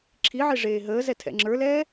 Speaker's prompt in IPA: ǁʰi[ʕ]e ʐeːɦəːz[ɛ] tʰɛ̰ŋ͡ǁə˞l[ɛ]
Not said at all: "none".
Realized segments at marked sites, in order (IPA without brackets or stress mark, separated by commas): ʕ, ɛ, ɛː